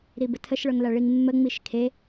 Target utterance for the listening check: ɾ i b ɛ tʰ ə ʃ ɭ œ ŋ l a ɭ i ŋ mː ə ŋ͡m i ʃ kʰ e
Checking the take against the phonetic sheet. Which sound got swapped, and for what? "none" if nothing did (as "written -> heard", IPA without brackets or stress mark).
ɛ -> ə